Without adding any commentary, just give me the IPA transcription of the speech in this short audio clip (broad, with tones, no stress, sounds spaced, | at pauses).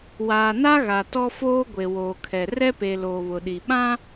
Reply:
w aː˨ n a˦ ɣ a˨ t ɔ˦ f oː˦ ɡʷ e˨ w oː˨ kʰ ɛ˨ r ɛ˦ p e˨ l oː˨ β ʊ˨ ɗ i˨ ɓ ã˦